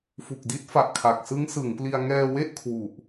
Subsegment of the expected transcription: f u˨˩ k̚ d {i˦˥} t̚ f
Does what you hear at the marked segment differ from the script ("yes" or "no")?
no